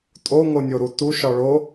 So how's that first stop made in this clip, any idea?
ejective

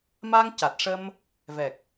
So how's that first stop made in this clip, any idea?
plain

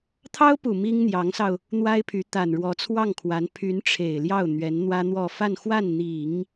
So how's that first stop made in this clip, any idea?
aspirated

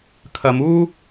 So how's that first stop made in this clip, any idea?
aspirated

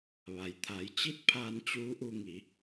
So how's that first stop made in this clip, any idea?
aspirated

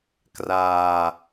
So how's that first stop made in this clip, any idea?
plain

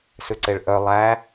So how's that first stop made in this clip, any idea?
click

